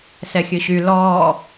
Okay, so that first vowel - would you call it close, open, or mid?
mid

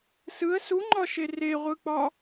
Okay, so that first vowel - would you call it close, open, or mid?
close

